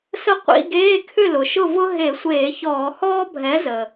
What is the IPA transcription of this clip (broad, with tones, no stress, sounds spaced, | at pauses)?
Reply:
s ə˥˨ qʷ ḭ˧˥˧ ɡ eː˧˥˧ kʰ ʏ˥˨ l ʊ˩ ʃ ʊ˥˨ v ʊ˥ ɦ e˧˩˧ sʷ eː˧˩˧ ç ɔː˧˩˧ h ɔː˥ bʱ ɛ˨˥ z ə˩